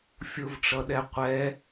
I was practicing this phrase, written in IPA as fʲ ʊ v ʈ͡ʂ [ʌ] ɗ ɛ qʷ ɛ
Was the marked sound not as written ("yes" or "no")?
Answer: no